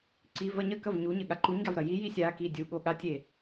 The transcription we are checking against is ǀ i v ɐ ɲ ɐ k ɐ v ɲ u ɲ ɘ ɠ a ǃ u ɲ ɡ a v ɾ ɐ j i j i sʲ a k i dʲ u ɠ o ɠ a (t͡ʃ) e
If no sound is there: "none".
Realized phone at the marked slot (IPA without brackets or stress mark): tʲ